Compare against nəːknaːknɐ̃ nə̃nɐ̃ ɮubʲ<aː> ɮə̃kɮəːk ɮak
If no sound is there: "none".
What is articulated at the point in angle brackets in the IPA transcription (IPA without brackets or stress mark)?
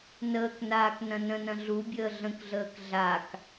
əː